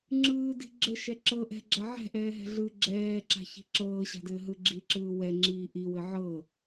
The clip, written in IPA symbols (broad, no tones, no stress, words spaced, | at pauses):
ŋ͡ǁɯːdi̤ ɡ͡ǁɘ ʃɛǁɤ ʔɛ̤ɡ͡ǁa ʕɛ̤ʔɛːɦɛ̤ ɮɯ ɡ͡ǁɛːǁa̤ çi̤ǁɤːɕa̤dɘː ɦɯɡ͡ǁiǁɯː wɛŋ͡ǁiː ʔiwɘ ʕɤ